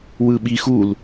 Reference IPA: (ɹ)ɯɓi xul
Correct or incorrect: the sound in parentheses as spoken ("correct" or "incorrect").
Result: incorrect